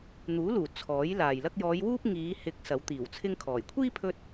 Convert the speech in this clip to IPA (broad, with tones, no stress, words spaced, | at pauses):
n̪uː˨˥luː˨˩ t͡sʰɔː˨˥jlaː˨jlɐ˥k̚ jɔː˨˧jwuː˥p̚ ŋiː˨˧ hɪ˨˥k̚ sɐ˨˥wt̪iː˨˩wt͡sʰɪ˥ŋkʰɔː˨˩j kʷʰiː˥pʰɵ˧t̚